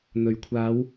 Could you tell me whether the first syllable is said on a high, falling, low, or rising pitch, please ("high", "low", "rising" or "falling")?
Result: rising